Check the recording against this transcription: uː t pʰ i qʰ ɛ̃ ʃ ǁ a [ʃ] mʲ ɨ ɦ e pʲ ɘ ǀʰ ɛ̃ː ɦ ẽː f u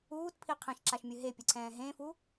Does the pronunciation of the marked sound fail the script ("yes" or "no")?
no